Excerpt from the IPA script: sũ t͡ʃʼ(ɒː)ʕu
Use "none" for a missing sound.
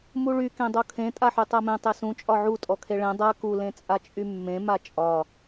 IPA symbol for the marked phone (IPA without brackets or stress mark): ɒ